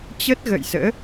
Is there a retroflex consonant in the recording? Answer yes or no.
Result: no